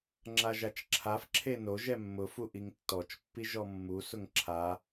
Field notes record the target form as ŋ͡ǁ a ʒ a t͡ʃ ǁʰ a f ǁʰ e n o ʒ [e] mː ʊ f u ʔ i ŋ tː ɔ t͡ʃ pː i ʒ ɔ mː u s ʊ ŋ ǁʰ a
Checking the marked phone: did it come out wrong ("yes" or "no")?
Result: yes